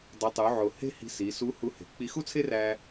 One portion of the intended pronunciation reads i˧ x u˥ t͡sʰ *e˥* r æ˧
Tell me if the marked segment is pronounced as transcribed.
yes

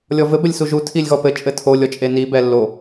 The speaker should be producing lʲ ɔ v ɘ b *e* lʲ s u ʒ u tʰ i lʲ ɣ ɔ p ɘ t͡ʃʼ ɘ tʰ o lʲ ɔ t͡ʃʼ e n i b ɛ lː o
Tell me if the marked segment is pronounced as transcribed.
no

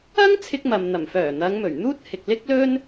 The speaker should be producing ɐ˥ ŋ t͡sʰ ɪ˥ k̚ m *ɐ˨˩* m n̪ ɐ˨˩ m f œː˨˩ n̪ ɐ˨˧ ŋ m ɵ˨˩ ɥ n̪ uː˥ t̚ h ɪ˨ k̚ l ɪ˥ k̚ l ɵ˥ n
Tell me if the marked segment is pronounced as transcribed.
no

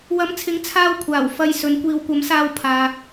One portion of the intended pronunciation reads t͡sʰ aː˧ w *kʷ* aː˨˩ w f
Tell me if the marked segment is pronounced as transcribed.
no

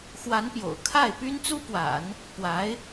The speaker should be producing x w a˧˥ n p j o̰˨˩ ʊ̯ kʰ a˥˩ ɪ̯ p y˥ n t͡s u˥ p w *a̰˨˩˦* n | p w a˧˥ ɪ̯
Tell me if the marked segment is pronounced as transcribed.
yes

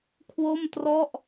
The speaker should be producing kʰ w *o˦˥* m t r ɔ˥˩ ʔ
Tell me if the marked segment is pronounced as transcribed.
no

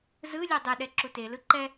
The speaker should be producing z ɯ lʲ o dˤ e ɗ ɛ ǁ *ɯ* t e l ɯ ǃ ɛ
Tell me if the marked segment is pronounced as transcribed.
no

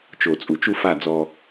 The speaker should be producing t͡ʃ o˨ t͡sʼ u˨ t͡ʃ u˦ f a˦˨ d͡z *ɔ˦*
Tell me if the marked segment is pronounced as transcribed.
yes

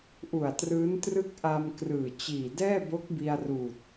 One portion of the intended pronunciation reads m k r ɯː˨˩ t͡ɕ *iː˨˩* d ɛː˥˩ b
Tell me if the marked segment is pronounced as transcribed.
yes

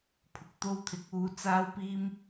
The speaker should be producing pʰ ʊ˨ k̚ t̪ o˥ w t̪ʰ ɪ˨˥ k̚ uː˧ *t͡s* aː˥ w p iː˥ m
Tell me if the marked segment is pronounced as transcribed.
yes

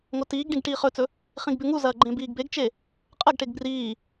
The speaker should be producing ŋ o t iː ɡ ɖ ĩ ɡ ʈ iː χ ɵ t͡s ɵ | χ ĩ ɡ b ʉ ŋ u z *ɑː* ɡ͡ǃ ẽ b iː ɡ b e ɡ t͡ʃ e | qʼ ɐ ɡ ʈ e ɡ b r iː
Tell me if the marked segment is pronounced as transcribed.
no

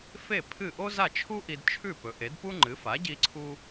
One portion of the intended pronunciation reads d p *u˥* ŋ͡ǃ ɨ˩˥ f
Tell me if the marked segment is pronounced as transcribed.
yes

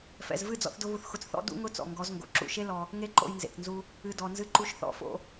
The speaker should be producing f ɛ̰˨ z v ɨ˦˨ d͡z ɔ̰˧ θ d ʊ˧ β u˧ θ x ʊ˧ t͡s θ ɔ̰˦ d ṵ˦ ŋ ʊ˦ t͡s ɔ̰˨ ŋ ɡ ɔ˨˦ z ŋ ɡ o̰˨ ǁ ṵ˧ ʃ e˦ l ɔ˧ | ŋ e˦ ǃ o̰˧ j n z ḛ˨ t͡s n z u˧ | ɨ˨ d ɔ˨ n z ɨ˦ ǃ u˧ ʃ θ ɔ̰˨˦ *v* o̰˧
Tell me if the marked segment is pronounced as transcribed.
no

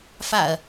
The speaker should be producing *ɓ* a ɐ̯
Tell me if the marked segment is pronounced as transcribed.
no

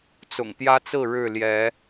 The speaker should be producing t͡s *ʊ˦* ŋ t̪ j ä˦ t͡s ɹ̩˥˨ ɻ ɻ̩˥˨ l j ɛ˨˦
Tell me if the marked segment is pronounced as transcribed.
no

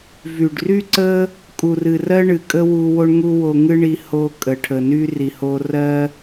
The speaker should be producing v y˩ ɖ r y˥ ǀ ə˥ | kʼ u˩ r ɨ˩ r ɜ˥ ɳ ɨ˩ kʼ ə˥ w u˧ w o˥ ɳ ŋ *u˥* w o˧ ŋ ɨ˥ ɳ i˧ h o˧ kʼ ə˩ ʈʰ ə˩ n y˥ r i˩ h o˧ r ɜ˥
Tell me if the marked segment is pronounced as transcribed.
yes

